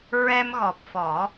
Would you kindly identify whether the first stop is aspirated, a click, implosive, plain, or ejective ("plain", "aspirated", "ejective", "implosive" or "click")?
plain